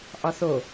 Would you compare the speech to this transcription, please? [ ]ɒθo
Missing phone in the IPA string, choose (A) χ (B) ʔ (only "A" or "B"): B